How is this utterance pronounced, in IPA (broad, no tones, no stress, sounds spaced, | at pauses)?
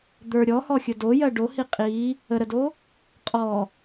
d̪ ə˞ ɾʲ ɔ h ɔ xʲ ɵ d o j ɜ ɖ o h i qʼ i | ə ɾ ə d o | qʼ ɔ